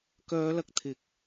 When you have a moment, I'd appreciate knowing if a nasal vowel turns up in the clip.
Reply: no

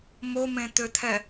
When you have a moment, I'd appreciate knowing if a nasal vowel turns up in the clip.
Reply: yes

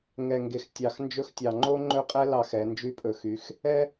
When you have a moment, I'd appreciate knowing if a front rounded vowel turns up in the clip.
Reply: yes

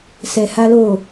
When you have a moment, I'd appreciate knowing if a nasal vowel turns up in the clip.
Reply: no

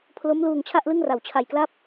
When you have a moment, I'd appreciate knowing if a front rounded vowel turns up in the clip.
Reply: no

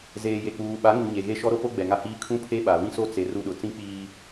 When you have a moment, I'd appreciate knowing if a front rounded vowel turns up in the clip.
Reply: no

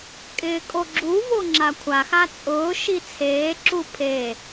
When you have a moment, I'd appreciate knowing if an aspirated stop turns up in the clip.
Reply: yes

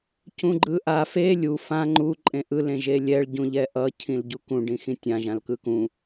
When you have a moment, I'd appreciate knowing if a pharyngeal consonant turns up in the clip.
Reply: no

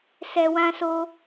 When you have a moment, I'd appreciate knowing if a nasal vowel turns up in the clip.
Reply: yes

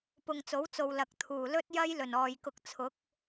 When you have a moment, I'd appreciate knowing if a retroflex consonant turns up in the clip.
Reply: no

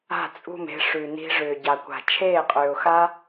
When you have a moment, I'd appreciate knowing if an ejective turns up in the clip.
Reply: yes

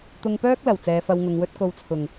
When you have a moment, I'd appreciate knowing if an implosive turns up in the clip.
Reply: no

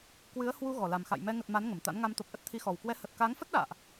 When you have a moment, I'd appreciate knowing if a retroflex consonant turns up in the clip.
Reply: no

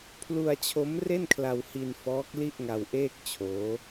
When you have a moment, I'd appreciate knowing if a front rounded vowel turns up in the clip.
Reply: no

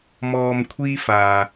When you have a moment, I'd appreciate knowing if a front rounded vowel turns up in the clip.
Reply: no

